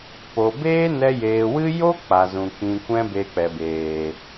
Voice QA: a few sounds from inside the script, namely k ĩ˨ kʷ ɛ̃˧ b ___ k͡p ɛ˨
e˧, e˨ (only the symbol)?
e˧